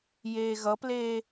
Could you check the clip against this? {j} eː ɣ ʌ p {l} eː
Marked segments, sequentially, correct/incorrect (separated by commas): correct, correct